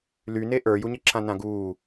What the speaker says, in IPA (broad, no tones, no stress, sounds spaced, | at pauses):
l y n e ʔ ə˞ j u ɲ ɛ ǁʰ ã n ã ɡ uː